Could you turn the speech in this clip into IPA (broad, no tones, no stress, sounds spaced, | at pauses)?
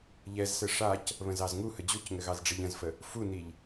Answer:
ʎ ɛ z s ɘ ʂ a c | β ə̃ z ɑ z ŋ u h ə d͡ʑ u c ŋ ɘ ɣ ɑ z ɖ͡ʐ i ʎ ə̃ z f ə | f u n i ʎ